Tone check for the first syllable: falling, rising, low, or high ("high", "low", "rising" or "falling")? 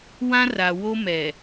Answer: high